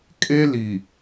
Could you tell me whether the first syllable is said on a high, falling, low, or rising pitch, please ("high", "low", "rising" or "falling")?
high